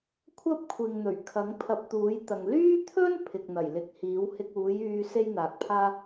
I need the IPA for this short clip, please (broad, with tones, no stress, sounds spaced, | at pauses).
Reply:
kʷʰ ɐ˥ p̚ kʷʰ ɪ˨ ŋ n̪ ɵ˨˩ ɥ kʰ ɐ˨˥ ŋ pʰ ɐ˧ p̚ t̪ uː˨˥ j t̪ ɐ˨ ŋ l yː˥ t̪ʰ ɵ˥ n pʰ ɪ˨ k̚ n̪ ɐ˨˩ j l ɪ˨˥ k̚ h iː˨˥ w h ɪ˧ k̚ uː˨˥ j yː˧ s e˥ j n̪ aː˨ k̚ pʰ aː˥